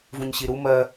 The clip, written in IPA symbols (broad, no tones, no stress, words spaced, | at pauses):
vũɲɕiɾu mɜ